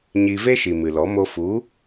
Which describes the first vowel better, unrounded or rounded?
unrounded